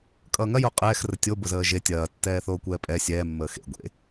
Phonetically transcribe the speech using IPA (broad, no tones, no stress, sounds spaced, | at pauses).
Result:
kʼ ʌː ŋ ɐ j o qʼ ɛː x r ə tʲ o b ʊ z əː ʒ e tʲ ɐː tː ɛː θ oː kʷ ɛː pʼ ɛ sʲ ɛː mː əː x ḛ ɡʷ ḛ